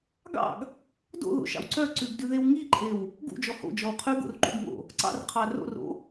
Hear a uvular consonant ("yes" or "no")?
yes